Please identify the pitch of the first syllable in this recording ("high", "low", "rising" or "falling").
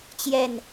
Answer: falling